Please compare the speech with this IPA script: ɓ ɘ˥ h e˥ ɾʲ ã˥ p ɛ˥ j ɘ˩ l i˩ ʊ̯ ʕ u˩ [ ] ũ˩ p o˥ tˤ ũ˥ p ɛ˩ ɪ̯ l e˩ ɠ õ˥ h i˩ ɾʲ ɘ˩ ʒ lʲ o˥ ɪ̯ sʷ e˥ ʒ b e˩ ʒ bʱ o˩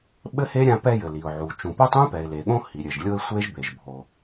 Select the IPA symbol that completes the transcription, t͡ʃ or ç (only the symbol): t͡ʃ